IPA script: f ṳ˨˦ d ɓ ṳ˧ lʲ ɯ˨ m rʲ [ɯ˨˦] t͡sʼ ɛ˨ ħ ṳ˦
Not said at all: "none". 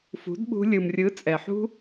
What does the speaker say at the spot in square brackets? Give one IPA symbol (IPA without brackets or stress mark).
ɯ˨˦